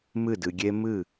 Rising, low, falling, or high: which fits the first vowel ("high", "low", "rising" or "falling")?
falling